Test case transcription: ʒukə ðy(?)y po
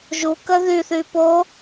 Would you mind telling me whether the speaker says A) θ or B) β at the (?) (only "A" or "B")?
A